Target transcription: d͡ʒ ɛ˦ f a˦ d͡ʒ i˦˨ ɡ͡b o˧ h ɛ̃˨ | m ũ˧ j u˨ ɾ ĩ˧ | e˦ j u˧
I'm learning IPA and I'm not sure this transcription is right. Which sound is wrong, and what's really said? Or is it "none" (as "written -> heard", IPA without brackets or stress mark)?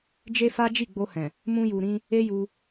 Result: ɛ˦ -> e˦